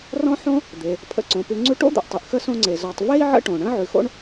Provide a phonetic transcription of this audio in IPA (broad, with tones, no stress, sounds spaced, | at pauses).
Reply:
r ɔ̃˥ ħ õ˥ | d̪ e˩ | pʰ ə̰˨ ǀ õ˩ p ʉ˨ ŋ͡ǀ ʉ˦ ʈ o̰˥ d̪ o̰˩ ʔ tˤ ʉ˩ ʔ x ə˥ s õ˦ ŋ͡ǀ e˩ z ɔ˨ tˤ v e˥ i̯ ʕ ə̰˦ ʈ õ˩ ɳ ə̃˥ ʕ ʉ˨ x o̰˦ ɳ